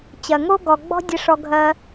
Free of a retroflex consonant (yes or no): no